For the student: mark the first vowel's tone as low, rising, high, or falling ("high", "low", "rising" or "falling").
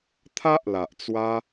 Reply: high